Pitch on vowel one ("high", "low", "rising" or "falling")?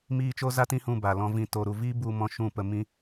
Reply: high